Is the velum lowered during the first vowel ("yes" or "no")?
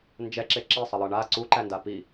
no